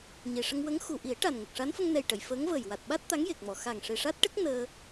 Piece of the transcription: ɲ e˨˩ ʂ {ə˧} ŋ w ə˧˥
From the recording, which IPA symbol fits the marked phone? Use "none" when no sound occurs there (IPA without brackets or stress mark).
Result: ə˧